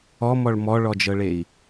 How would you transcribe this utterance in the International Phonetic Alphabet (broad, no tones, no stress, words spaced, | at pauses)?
ɔmɔɭ mɔɭɔd͡ʒɤɭei̯